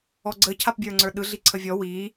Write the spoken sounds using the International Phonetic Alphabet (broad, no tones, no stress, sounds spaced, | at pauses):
ɔ ɡ͡ǀ ə cʰ a p bʲ ə˞ ŋ͡ǀ ə˞ ɗ ɯ ɮ i ǀʰ ə vʲ ɔ w i